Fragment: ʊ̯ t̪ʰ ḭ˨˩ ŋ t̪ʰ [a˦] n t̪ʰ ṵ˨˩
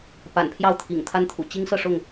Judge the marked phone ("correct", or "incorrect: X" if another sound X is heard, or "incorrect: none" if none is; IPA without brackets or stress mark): correct